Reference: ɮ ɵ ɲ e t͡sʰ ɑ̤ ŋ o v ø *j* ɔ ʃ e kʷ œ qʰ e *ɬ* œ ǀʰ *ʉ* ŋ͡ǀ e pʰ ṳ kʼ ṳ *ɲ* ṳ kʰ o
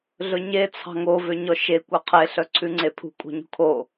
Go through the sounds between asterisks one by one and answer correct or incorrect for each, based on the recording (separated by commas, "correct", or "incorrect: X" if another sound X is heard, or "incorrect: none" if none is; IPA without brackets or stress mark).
incorrect: ɲ, correct, correct, correct